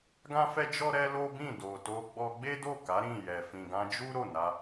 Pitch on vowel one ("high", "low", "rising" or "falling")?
high